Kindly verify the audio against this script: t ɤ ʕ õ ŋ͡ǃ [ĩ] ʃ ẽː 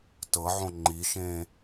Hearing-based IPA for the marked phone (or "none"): i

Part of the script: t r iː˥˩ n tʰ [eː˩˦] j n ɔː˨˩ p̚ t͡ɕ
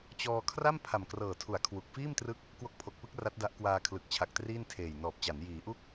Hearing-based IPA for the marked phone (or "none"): eː˨˩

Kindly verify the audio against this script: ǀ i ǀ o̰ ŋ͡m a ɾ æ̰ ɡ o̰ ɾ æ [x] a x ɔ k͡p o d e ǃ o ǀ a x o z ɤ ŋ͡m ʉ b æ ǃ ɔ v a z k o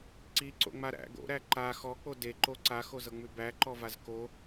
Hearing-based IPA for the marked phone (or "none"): ǃ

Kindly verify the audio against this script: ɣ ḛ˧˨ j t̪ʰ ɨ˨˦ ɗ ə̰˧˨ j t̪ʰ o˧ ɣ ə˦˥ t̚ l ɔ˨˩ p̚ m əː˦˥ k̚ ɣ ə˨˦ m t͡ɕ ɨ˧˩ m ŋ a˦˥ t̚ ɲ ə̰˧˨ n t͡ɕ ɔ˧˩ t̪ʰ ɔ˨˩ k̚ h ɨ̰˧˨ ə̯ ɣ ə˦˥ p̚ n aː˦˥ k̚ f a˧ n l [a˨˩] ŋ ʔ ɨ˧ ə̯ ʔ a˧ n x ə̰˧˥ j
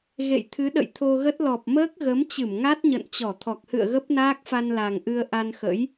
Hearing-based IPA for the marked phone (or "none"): a˨˩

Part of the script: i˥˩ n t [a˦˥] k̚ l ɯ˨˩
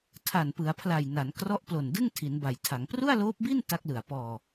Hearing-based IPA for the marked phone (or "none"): a˦˥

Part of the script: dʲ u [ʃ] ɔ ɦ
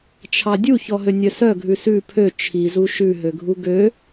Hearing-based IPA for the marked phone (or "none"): ç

